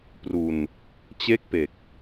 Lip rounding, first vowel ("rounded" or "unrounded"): rounded